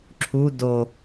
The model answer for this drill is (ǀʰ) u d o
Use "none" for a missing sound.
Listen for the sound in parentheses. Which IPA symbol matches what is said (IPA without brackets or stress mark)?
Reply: ǁʰ